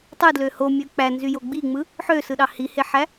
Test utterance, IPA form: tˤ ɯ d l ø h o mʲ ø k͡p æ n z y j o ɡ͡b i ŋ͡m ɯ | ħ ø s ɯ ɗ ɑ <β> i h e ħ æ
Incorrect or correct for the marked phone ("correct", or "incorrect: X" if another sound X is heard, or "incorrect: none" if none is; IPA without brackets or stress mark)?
incorrect: h